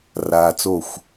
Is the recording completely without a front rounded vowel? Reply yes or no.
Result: yes